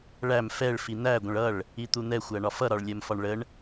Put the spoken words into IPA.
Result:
ɭ æ m f ɛ ɭ f i n̪ æ ɡʷ ə̃ ɭ ʌ ɭ | i t̪ u n̪ ɛ xʷ æ ɳ ɒ f ʌ ɾ ɒ ɭ lʲ ɜ m f ɒ ɳ ɭ ə ɳ

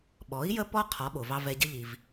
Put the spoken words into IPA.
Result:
ɓ ɔ˩˥ i̯ j ə˥ p ɔ˥ qʰ ɔ˩˥ ɓ o˩ v ɑ˥ v ɛ˧ ɟ ə˥ ʎ i˩ v

